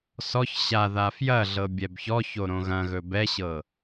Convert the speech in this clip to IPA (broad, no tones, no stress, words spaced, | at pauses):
sɔç ɕa ðafjɐɮɤ bʲɛbçɔço ɾõɣɐ̃ɣɵ bɛɕɤ